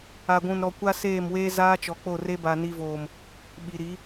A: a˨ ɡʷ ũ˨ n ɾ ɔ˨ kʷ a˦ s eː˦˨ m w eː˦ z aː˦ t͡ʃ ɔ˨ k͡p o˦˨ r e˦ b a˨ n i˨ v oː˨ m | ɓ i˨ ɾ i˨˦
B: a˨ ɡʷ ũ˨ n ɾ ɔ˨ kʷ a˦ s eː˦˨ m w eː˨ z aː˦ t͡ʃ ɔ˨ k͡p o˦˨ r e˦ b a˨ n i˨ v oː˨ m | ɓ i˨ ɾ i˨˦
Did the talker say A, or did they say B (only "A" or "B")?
A